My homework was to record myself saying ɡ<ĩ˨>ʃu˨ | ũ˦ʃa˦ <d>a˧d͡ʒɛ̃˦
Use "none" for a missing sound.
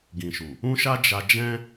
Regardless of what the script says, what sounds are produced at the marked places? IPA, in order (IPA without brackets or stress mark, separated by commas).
ĩ˨, d͡ʒ